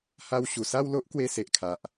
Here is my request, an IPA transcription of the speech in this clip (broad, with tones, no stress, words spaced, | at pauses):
ha˧wɕu˨˩ sa˥˧wlo˦ʔ kwe˧se˨ʔkʰa˨ʔ